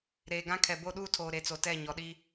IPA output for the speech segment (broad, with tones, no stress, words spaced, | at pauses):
ɾeː˨ɡã˦kʰɛ˨ bo˦ɗuː˦tʰoː˨ ɾe˨t͡so˨tɛ˦˨ ɲɔ˨ɗi˦